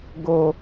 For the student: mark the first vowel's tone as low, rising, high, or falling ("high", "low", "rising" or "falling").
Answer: low